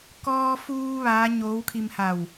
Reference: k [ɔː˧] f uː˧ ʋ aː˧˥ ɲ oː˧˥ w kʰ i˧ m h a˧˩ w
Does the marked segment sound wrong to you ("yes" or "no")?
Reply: no